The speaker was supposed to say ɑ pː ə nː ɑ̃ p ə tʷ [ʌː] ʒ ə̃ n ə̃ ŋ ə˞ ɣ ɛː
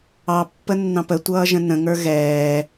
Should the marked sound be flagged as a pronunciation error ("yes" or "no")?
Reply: no